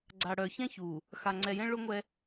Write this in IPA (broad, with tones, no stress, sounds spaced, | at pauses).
ɡ͡ǀ a˨ ɽ œ˨ ç ɛ̃˦ ç u˨ | x a˨ ŋ͡ǀ ɛ˨ j ɛ̃˦ ɭ ʊ˦ ŋʷ ɛ˦